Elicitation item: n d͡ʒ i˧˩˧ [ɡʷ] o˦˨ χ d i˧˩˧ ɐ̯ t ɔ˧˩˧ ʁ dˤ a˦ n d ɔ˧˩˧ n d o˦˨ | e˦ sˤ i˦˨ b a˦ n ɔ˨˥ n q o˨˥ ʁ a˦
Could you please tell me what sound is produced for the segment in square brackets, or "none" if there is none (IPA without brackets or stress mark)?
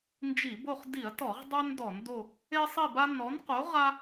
b